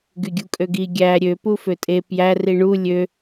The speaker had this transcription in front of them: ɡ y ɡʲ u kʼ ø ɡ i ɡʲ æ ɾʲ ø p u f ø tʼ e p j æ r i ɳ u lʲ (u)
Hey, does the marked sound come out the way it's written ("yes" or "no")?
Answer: no